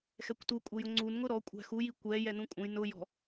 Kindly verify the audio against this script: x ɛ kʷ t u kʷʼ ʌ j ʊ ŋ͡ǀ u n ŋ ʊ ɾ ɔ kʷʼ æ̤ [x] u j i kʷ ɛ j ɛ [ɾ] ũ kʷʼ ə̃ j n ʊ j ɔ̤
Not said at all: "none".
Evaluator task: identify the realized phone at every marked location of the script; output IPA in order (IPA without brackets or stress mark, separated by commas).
x, n